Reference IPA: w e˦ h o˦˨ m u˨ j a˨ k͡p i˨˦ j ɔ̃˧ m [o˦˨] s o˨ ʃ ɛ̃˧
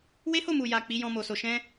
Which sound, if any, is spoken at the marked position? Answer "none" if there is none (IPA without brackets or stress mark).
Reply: o˨